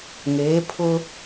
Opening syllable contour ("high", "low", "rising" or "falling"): rising